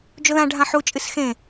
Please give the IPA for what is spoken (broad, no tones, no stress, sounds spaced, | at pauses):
d͡ʒ o ð ã ɖʱ ã ħ u t͡ʃʼ ɨ s x ẽ